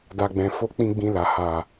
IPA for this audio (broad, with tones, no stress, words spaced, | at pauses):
da˨ɡ͡bɛ̃˨fo˧ k͡pĩ˧ ɡ͡bĩ˧la˨ ha˨